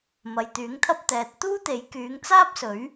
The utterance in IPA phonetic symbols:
mɐ˨jt̪yː˨˥ŋt̪ʰɐ˥p̚ t̪ɛː˨t̚ t̪uː˥t̪e˨˥j kyː˨˧ŋt͡saː˥p̚sɵ˨˥ɥ

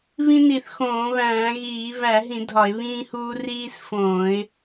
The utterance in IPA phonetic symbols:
βĩ˦ni˧˩˧θxõː˧˩˧βæ̃ː˧˩˧ ɣiː˧˩˧ βæ˧˩˧ɦĩ˧˩˧ dʱɒ˧˩˧ɪ̯βĩː˦huː˦ riː˦sfõː˧˩˧ɪ̯

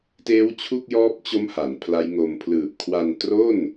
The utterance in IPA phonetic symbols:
teː˦˥wt͡ɕʰu˥˩k̚jɔː˦˥p̚t͡ɕo˦˥m ha˩˦npʰla˦˥jŋo˧m pʰlɯː˨˩p̚kʰwa˧ntro˥˩n

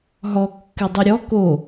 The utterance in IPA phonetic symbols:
ɦɔ kːɨdˤɨɾʲɔ ko

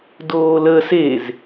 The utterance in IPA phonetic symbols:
doːləːs ez

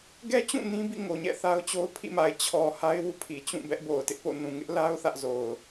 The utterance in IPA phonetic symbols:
ɡɛ˦t͡ɕũ˦˨ nĩ˦bḭ˦˨ ŋo˨ɲɛ̰˦˨ θa˦ʊ̯t͡ɕo˦ʊ̯ pʰḭ˦˨ma˨ɪ̯ t͡ɕʰɔ˨ ha˦ɪ̯wu˦pʰi˨ t͡ɕũ˦˨ bɛ˦ʔbo˨ʊ̯tɪ˦ʔpo̰˦˨ nũ˨ŋɪ˦ʔla˦ʊ̯ θä˦ʔzo˨ʊ̯

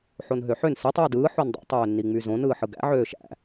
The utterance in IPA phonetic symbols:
ħonɦøħøn setˤ wydɯː ħondˤo̰ tˤøːnːiŋ͡myzõn ɯːħɯɡæ̰ ʕøːʃæ̰

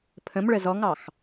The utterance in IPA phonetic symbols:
pʰə̃mɭə zɔŋɑx

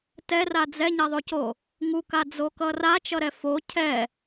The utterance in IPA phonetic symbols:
tɛra d͡zɛɲɛðˤoco | ŋukad͡zokʌ rat͡ʃʌɾɛ fo cʰɛ

